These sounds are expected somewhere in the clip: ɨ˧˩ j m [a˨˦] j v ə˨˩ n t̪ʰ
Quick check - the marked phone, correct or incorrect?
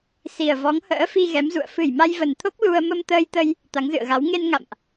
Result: incorrect